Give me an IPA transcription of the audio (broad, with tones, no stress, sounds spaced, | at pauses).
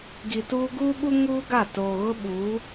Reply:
ɡ i˨ t uː˦ ɡ uː˦ ɓ u˦ ŋ uː˦ ɡ a˦˨ t oː˨ ɣ ʊ˦ ɓ uː˨˦